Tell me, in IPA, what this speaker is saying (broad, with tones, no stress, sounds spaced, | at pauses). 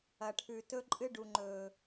ɐ˨ ʈʰ ʉ˨ t ɵ˦ ǃʼ ɨ˦ ɖ u˨ ŋ͡ǃ ɵː˨